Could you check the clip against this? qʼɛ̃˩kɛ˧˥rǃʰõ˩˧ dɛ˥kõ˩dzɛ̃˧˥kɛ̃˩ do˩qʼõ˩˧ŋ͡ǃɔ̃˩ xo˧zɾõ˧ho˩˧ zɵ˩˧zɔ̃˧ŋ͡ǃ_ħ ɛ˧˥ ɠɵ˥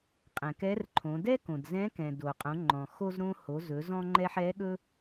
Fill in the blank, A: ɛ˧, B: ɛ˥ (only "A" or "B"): A